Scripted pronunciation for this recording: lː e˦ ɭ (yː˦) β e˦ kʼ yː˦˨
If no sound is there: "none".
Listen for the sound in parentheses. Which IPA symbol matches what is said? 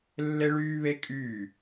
yː˦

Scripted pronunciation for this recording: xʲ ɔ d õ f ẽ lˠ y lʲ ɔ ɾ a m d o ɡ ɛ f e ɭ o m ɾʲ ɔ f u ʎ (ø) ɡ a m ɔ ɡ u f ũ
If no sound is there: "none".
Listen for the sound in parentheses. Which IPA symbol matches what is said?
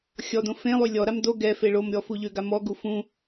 ø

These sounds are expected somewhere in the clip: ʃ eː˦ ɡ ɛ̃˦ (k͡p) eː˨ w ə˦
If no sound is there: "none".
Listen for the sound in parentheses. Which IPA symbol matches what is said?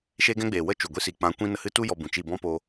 ɡ͡b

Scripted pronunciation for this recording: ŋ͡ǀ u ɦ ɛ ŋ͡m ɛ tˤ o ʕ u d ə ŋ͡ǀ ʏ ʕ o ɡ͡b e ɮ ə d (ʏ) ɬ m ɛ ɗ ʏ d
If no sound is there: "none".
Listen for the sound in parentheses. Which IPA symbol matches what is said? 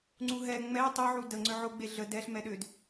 ɛ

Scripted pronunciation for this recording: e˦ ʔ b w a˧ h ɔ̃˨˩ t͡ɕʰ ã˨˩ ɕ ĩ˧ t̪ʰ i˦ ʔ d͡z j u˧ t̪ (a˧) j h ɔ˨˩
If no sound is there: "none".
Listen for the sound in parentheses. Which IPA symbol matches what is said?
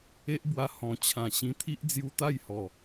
a˥˧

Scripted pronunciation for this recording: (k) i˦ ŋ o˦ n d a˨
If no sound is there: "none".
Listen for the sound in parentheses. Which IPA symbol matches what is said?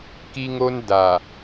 k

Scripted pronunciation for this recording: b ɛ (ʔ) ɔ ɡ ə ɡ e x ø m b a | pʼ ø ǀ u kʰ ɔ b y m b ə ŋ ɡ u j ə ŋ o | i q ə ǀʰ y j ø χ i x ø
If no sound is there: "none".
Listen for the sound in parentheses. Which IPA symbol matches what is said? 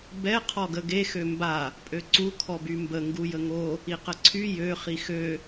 qʰ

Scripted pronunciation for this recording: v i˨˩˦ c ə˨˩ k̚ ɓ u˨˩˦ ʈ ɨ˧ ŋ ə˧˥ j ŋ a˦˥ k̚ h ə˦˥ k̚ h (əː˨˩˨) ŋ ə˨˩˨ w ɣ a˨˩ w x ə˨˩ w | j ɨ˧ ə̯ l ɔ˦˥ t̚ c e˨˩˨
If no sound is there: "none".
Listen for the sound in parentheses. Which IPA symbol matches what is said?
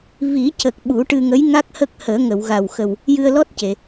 əː˨˩˦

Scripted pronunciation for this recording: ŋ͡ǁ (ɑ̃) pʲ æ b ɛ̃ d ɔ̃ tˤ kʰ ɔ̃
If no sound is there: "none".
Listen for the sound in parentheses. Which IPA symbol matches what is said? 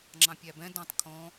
ɑ̃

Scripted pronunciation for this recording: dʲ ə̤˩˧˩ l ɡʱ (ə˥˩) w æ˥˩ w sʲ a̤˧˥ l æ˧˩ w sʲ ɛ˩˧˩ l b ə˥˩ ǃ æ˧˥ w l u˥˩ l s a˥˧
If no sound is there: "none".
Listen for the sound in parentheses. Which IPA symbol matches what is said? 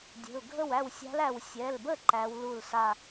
ə˥˩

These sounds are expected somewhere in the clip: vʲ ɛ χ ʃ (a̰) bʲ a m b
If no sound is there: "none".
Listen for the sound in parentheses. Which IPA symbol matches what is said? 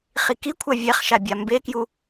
a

